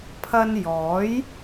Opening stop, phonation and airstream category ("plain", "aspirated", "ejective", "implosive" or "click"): aspirated